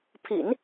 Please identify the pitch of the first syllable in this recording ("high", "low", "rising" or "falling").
low